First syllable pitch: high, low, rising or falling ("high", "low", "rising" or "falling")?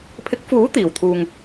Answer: rising